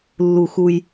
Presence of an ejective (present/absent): absent